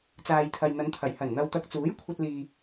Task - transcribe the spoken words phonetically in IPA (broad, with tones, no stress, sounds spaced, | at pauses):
t͡s aː˨ j t̪ʰ ɐ˨ j n̪ ɐ˨˧ n t̪ʰ ɐ˨˩ j h ɐ˨˩ n n̪ ɐ˨ w t̪ ɐ˨ k̚ t͡s uː˨˥ j kʷʰ ɐ˧ t̚ l iː˨